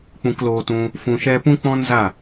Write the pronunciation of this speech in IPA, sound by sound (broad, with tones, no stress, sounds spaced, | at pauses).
k͡p ũ˧ k l oː˧ t ũ˧ | f ũ˧ ʃ ɛ˦ p ũ˦ k͡p ɔ̃˦ n z a˦˨